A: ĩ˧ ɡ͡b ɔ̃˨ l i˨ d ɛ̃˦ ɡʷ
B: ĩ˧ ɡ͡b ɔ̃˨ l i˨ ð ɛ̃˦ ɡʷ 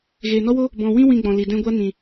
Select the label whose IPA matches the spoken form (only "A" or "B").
A